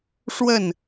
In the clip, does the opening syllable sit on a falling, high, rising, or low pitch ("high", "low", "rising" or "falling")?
falling